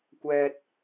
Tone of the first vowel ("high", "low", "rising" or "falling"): low